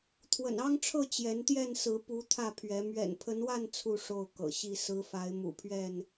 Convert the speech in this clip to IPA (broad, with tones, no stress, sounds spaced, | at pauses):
t̪ʰ w ə̰˨˩ n ɑ˦ ŋ ʈ͡ʂʰ ɤ˥˨ t͡ɕ j ɛ˨˦ n t̪ j ɛ˥˨ n s ɹ̩˨˦ p u˨˦ t̪ʰ ä˥˨ pʰ ɥ ɛ˨˦ m ɥ ɛ̰˨˩ n pʰ ə˨˦ n w a˥˨ n t͡sʰ u˥˨ ʂ o˥˨ ʊ̯ k ɤ̰˨˩ ɕ i˥˨ s ɹ̩˨˦ f a˨˦ ɪ̯ m ṵ˨˩ pʰ ɥ ɛ˥˨ n